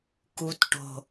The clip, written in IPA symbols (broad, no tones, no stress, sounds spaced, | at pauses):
k u t ʈ o̤